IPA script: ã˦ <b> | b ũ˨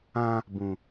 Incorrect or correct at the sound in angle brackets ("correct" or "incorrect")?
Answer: incorrect